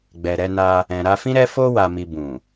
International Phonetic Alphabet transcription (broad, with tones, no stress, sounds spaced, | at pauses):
ɡ͡b ɛ˨ ɾ ɛ˧ n a˧ | ɛ̃˨ ɾ a˧ f ĩ˦ ɾ ɛ˦ f o˦ w a˧ m i˧ b ũ˨